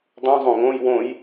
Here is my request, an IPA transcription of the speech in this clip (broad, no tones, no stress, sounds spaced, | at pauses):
dˤ ũ zˤ õ ŋ õ j w õ j